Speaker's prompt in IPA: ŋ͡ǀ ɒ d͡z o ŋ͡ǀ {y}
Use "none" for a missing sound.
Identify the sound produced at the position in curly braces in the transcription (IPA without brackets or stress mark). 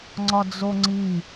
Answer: i